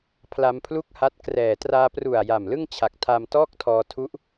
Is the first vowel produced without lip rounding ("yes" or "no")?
yes